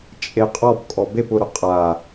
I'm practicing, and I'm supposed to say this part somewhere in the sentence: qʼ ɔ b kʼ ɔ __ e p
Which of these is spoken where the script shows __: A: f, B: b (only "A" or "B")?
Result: B